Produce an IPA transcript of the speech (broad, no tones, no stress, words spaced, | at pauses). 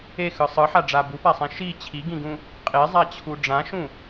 exɯ sˤɯħaɖ͡ʐa bupasˤẽ ʃi t͡ɕʰiɡĩɡũ | qʼezˤat͡ɕʰu ɖ͡ʐãʃũ